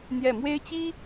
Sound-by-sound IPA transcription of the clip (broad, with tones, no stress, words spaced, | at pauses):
n̪jɛ˥˩ mwe˥ɪ̯t͡ɕi˥